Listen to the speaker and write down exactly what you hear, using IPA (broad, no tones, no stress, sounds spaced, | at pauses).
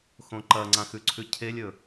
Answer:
x õ ǃ ɐ ŋ͡ǀ ã x ʉ ǀʰ ʉ cʰ e lʲ ɵ